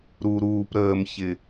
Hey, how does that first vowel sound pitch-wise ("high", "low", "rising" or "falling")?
low